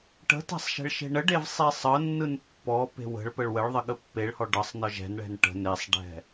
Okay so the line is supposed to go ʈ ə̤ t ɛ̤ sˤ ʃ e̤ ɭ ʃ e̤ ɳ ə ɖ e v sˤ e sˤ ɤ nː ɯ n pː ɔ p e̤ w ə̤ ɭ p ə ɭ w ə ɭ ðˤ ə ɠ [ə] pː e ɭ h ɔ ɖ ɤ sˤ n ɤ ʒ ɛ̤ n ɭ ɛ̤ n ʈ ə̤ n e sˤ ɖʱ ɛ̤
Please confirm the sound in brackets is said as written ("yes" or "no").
yes